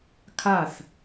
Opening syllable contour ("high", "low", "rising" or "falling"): falling